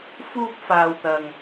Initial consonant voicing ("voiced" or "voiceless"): voiceless